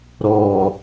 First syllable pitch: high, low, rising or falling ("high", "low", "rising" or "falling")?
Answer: low